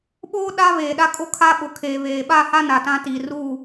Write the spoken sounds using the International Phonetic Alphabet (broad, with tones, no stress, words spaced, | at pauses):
ɓoː˦ ɗa˦ βeː˨ɗa˦ kʼo˦kʰa˦ɓʊ˨ kʰeː˨βeː˨ ɓa˦˨ha˦ na˨tã˦ tiː˨ ruː˦˨